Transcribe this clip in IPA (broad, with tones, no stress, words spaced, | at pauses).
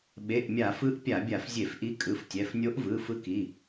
ɓe˩˧˩ʔmʲa˧˩˧fɯ˧˥ʔ pʲa˧˩˧bʲa˧˩˧f zʲe˧˩˧fʔi˧˥ kʼɯ˩˧˩ftʲɛ˩˧˩f nʲo˧˥ʔvɯ˩˧˩ fɯ˧˥ki˩˧˩